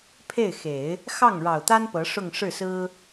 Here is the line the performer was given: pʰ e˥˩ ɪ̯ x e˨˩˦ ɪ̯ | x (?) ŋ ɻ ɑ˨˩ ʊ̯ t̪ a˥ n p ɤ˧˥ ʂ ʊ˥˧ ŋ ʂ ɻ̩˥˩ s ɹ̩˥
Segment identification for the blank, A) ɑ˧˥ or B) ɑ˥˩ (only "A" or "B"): B